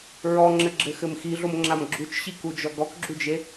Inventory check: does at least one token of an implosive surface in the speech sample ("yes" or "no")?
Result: no